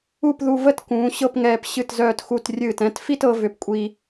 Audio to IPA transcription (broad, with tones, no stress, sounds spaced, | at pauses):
u˥˧ p ð u˧ v ə˥˧ t k ũː˩˧ ɕ ɤ˥˧ p ŋ ɛː˧ p ɕ ɨ˧˩ t z œː˧˩ t x u˧˩ t rʲ ɨː˧˩ t ɛ̃˥˧ t f i˥˧ t ɤ˩˧ v ʏ˩˧ p kʷʼ i˧